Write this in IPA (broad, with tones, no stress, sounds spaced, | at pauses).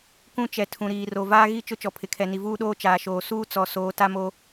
k ũ˦˨ t͡ʃ ɛ˨ tʰ ũ˨ ɾ iː˨ r o˨ v aː˦ ɣ i˦˨ t͡ʃ ʊ˦ t͡ʃ ɔ˨ pʰ ɪ˨ kʰ ɛ˨ n i˨ v uː˦ ɗ oː˦ t͡ʃ aː˨ ʃ oː˨ s uː˦ t͡s ɔ˨ s oː˨˦ t a˦ m o˦